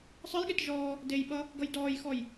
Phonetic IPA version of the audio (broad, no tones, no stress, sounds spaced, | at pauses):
sˤ ɨ j ɠ e t ʒ ɔː | d e j ɓ ʌ | ɡ ʌ j d ɔː j x ɔ j